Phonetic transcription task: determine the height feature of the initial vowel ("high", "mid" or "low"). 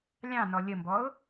low